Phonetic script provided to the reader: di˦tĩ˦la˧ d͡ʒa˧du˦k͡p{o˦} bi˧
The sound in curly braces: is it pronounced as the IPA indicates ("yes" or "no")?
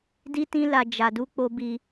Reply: yes